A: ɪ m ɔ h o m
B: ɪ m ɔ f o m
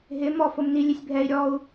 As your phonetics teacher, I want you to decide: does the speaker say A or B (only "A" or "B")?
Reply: B